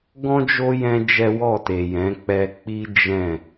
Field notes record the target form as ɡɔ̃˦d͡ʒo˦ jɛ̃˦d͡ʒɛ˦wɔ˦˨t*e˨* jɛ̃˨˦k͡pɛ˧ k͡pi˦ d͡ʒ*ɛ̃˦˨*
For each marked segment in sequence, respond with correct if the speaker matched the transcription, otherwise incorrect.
correct, correct

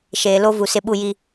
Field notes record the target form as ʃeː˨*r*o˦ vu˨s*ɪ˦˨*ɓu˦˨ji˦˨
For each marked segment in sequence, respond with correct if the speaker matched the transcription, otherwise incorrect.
incorrect: l, correct

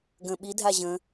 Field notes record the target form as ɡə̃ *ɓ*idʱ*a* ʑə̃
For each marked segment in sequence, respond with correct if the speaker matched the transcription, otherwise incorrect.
correct, correct

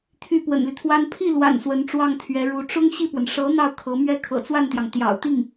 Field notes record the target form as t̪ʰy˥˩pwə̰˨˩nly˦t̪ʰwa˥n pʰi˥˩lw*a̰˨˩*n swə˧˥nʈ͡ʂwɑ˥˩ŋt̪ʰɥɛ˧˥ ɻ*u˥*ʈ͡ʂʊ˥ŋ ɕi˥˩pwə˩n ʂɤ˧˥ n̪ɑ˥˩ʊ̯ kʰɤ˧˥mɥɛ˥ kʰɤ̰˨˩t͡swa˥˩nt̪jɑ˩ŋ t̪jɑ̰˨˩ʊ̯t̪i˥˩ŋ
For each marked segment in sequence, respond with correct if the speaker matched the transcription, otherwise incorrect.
correct, incorrect: u˧˥

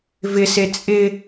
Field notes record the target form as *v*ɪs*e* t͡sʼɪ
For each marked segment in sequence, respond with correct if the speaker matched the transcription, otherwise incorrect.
correct, correct

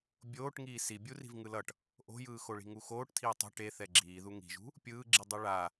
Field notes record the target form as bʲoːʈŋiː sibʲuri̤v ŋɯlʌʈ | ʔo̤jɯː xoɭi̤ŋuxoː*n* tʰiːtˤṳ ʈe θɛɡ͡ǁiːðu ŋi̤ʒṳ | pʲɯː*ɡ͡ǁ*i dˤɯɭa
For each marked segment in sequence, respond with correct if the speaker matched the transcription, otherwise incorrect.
incorrect: ʈ, correct

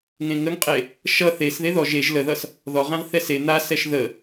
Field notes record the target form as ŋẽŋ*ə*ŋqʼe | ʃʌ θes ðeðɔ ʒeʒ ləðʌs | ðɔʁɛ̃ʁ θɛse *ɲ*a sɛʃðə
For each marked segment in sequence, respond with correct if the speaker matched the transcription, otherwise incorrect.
correct, incorrect: n̪

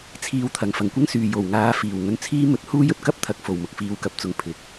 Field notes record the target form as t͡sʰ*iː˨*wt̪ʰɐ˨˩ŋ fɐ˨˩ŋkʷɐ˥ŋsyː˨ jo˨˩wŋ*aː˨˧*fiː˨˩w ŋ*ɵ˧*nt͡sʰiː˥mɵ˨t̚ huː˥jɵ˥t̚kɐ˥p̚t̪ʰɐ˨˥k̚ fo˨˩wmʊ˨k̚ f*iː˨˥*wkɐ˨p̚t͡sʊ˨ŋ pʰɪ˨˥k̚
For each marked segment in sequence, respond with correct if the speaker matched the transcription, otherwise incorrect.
correct, correct, correct, incorrect: iː˨˧

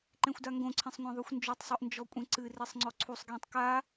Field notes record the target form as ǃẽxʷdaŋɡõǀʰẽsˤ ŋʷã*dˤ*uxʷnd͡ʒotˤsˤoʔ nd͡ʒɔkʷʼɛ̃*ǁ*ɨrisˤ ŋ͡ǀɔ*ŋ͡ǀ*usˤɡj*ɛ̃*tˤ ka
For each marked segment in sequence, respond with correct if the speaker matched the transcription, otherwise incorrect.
incorrect: ðˤ, incorrect: ǀ, incorrect: ǀʰ, correct

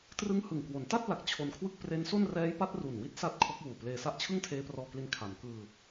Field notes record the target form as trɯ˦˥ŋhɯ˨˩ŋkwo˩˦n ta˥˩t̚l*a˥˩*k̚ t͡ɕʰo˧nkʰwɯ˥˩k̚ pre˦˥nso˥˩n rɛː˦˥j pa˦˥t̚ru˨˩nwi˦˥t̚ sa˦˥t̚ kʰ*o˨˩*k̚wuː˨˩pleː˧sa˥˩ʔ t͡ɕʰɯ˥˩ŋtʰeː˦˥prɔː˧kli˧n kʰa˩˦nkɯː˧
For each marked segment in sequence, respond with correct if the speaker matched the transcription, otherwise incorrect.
incorrect: a˨˩, incorrect: o˦˥

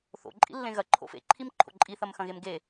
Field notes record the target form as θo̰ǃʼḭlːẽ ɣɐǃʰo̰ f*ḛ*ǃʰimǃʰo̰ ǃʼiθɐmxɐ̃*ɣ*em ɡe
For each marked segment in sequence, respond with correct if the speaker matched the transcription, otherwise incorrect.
correct, correct

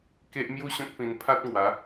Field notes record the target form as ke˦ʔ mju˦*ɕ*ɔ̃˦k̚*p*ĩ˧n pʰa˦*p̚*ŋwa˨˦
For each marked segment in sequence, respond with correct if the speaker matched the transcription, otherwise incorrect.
correct, correct, incorrect: t̚

